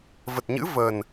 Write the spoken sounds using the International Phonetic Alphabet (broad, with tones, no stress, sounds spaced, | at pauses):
v ə˨˩ t̚ ɲ ɨ̰˧˥ v ə˨˩ n